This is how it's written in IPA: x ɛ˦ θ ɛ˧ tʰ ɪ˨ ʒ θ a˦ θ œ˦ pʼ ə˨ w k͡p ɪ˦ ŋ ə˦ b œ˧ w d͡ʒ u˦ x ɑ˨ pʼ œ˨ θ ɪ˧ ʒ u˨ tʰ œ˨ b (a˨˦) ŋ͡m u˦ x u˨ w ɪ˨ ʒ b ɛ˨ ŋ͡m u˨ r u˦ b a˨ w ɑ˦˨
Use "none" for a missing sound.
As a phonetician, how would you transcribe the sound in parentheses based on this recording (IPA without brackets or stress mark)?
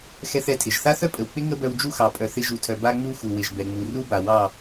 a˦